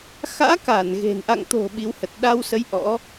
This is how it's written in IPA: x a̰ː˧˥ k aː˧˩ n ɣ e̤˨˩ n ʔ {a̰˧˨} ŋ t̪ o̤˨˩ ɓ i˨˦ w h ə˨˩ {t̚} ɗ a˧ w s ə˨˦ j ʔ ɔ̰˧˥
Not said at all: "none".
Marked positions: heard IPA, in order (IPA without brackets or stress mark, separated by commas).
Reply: a̰˧˨, t̚